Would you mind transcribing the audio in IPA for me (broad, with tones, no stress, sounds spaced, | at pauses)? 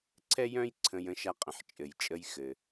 ǀʰ ɛ˥ j œ̃˥ j ǀʰ ə̃˧ j ə̃˧ ʃ a˧ qʼ ə̃˩ ħ t͡ʃʼ ɘ˩ j t͡ʃʼ ə˧ j x ɘ˩